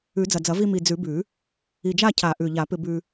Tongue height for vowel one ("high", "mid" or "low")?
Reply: high